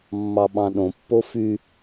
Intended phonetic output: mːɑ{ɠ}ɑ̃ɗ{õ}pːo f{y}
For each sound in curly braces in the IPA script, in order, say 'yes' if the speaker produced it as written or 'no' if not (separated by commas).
no, yes, yes